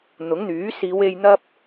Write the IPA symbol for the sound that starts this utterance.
n̪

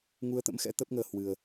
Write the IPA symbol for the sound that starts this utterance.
ŋ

